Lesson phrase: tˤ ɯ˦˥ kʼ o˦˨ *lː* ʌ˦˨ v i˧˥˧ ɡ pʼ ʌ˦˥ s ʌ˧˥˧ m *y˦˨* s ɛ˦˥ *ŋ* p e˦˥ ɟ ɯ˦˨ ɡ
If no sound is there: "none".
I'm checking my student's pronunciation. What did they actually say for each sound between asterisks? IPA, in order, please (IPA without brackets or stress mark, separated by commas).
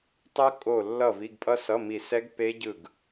lː, i˦˨, ɡ